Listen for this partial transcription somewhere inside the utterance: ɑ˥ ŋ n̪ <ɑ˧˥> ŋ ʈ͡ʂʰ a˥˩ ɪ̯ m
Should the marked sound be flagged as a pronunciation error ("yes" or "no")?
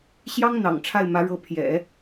yes